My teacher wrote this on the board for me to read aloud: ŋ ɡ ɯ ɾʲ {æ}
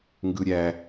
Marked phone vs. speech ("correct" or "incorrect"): correct